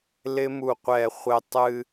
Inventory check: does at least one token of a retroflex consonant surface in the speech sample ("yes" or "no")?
no